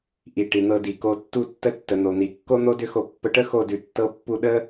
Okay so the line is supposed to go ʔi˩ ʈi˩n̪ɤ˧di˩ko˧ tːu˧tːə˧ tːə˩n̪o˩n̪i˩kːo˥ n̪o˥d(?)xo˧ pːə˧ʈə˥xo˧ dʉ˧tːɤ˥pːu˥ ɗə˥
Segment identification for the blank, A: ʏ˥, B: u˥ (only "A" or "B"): A